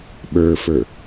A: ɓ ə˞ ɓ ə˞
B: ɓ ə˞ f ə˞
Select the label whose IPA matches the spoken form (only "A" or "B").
B